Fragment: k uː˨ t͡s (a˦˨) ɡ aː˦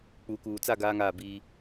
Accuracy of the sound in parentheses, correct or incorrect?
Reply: correct